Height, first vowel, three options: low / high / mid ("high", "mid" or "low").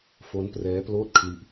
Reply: mid